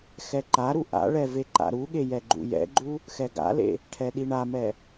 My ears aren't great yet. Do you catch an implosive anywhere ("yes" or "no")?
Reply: yes